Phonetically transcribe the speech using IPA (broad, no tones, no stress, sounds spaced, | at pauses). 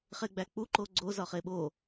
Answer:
χ e ɡ͡b æ k͡p u ǃ o ɡ͡ǀ o z ɒ χ e ɓ o